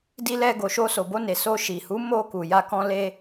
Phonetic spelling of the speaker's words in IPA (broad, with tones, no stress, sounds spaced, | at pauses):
d i˧ l ɛ˧ ɡ o˨ ʃ o˧ s o˨ b o˧ n e˨ s o˧ ʃ i˨ h u˨˦ m o˧ k u˨ j a˧ k ɔ̃˧ l e˧